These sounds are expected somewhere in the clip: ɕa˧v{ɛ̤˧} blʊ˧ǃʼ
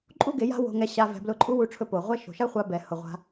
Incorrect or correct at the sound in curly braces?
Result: correct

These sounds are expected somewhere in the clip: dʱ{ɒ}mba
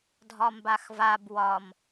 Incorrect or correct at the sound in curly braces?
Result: correct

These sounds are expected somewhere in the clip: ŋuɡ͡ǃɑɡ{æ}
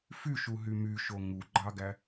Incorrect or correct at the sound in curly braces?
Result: correct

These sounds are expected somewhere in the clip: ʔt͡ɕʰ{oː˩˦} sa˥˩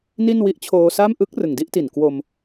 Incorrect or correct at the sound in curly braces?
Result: incorrect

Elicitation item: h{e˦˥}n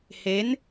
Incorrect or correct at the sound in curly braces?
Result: correct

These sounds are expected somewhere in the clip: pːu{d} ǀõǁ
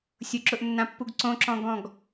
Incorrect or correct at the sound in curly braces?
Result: incorrect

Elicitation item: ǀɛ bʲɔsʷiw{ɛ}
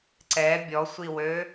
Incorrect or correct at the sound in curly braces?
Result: incorrect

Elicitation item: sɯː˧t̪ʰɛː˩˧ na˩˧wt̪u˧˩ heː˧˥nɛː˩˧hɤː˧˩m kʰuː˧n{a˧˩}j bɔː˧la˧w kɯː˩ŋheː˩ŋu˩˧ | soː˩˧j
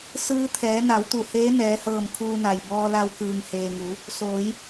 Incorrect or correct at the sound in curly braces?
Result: incorrect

